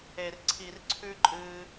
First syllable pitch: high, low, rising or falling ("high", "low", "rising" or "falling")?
low